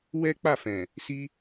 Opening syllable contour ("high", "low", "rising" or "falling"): high